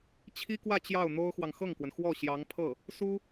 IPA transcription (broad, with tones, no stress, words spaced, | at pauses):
t͡ɕʰi˥kwä˥˧ t͡ɕjɑ˥˩ʊ̯n̪o˥ʊ̯xwɑ˨ŋ xɤ˥˩ŋkwə˩n xwɔ˥˩ ɕjɑ˧˥ŋpʰɤ˥˩ | su˥